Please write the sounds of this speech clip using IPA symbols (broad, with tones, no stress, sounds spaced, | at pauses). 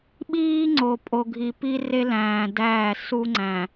ɓ iː˦ ŋ͡ǀ o˨ pʼ o˨ ɡʱ i˨ p i˦ r e˦ l æ̃ː˨ d æː˦˨ s u˦ ŋ͡ǀ æ̃˨